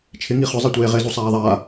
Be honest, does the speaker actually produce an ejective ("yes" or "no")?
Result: no